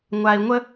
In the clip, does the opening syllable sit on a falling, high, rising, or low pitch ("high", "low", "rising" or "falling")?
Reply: low